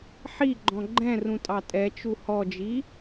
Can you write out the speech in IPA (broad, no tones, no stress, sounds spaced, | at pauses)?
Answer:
ħ i ɡ͡ǃ ɔ̃ ɡ͡ǃ ɛ̃ r ũ tʼ ɑ tʼ ɛ t͡ʃ u h ɔ d͡ʒ i